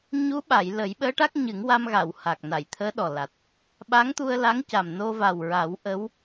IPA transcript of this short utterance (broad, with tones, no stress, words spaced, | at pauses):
ɲu˧˥ɓa˨˩˨j lə˨˩˦jɓəː˧˥ʈa˦˥k̚ ɲɨ˨˩˦ŋwa˧mɣa˨˩˨w ha˨˩k̚na˨˩˨jt̪ʰəː˧˥ɗɔ˨˩ la˨˩t̚ | ɓa˧˥ŋt̪u˧ə̯la˧˥ŋca˨˩m no˧va˨˩wɹa˨˩˦w ʔə˧˥w